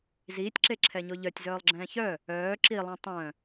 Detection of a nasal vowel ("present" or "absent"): present